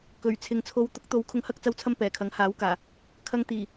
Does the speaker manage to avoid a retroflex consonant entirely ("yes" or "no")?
yes